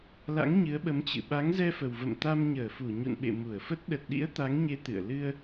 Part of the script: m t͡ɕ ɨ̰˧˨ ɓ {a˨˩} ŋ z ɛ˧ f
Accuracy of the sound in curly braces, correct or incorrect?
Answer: incorrect